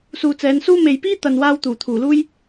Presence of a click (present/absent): absent